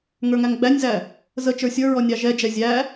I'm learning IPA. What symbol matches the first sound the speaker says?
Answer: ŋ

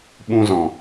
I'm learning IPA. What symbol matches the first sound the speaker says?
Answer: ɓ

